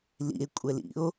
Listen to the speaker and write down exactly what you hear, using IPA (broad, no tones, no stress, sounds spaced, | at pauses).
l ḭ e̯ kʷʼ ɛ l ḭ o̯